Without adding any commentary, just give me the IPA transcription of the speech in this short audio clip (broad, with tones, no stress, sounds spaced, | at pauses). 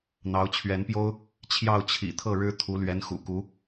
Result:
n̪ ɑ˧˥ ʊ̯ t͡ɕʰ ɥ ɛ˧˥ n p j o˥ ʊ̯ | t͡ɕʰ j ɑ˥˩ ʊ̯ t͡ɕʰ ḭ˨˩ t̪ʰ ɤ˥˩ ɻ ɻ̩˥ t̪ʰ u˧˥ l ɥ ɛ˧˥ n x ṵ˨˩ k u˧˥